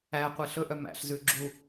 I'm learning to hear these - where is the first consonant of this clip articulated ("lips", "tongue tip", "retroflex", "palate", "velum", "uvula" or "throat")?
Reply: uvula